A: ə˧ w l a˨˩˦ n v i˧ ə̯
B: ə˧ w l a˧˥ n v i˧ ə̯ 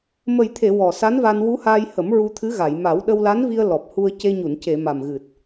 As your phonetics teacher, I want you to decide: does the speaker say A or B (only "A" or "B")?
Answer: B